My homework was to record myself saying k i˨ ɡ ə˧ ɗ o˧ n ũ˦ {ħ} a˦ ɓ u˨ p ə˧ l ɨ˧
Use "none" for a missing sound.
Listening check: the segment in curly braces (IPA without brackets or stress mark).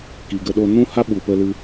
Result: h